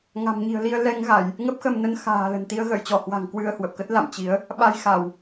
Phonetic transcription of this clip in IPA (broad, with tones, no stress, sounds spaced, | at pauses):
ŋ a̤˨˩ m ɲ i̤˨˩ ə̯ l i˧ ə̯ l ɛ˧ ŋ ɣ a˧˩˨ j | ŋ ə˦˥ p̚ x ə˧ m n ə˧ n x a̤ː˨˩ l ə̤˨˩ n t̪ i˧ ə̯ ɣ ə̰ː˧˨ j t͡ɕ ɔ˧˩ h w a̤˨˩ ŋ k w ɨ˧ ə̯ h w ə˨˩ p̚ k ə˦˥ t̚ l a̰˧˨ m t͡ɕ i˨˦ ə̯ | ɓ a˧ j x a˧˩˨ w